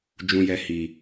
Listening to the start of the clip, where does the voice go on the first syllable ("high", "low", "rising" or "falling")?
low